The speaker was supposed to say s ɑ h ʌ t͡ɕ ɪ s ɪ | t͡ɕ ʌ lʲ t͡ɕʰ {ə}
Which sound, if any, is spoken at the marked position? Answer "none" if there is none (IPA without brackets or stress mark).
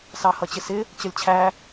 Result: æ